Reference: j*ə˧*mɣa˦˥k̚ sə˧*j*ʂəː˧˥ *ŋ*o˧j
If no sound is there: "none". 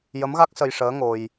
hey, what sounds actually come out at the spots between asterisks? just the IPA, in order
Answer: ə˧˥, j, ŋ

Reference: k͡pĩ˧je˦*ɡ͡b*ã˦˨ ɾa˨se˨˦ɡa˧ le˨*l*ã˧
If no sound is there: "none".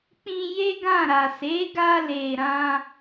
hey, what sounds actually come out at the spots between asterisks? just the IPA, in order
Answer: ɡ, ɾ

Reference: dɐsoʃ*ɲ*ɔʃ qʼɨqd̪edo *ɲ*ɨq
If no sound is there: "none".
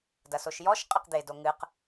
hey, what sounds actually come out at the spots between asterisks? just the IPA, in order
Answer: j, ŋ

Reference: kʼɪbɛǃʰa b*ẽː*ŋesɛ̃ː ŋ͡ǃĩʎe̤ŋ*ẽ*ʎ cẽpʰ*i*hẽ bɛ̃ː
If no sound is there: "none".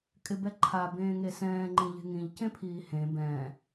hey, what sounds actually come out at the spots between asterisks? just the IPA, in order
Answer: ẽː, ĩ, iː

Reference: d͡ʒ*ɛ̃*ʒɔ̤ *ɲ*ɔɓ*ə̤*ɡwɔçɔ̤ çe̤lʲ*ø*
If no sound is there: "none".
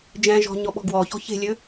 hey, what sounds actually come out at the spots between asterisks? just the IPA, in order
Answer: ɛ̃, ɲ, ɔ̤, ø

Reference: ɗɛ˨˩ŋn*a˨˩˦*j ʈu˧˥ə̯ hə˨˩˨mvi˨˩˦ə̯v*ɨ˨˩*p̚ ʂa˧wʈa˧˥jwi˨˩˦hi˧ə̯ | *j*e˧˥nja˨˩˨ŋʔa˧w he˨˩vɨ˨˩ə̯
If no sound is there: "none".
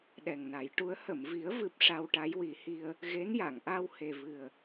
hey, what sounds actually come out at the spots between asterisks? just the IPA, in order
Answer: a˨˩˦, ɨ˨˩, ɣ

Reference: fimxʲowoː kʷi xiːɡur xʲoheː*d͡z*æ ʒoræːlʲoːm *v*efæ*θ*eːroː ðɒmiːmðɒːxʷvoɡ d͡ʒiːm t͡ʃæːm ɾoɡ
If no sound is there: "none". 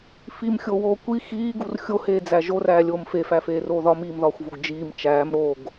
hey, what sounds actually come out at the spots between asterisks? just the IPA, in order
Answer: d͡z, f, f

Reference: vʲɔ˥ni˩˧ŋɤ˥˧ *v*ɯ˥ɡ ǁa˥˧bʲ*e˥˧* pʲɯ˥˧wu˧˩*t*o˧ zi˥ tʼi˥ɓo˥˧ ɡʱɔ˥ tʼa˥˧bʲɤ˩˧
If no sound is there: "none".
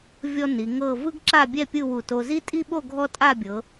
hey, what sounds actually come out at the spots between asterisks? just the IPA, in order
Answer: v, ɛ˥˧, t

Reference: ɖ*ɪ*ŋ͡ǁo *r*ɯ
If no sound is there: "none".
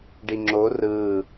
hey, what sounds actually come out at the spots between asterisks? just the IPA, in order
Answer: i, r

